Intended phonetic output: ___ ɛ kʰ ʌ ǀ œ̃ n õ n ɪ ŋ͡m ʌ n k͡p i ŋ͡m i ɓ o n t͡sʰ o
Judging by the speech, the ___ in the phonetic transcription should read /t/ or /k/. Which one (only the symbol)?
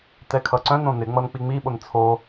t